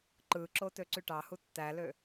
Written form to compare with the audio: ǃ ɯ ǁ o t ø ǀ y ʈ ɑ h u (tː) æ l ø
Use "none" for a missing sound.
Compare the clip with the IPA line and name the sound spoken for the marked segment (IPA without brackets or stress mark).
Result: tː